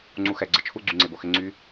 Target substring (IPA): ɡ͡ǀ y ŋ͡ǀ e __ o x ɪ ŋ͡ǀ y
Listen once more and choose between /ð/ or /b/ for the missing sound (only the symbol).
b